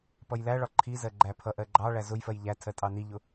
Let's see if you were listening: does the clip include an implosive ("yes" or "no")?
no